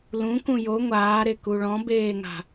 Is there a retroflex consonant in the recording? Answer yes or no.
yes